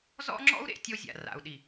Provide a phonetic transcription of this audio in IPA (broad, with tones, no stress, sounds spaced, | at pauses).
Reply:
z ɔ̰˦ ŋ͡ǁ ɔ̰˦ u̯ ɾ ḛ˨ tʲ o˦ zʲ a̰˨ r a̰˨ u̯ ɗ i˨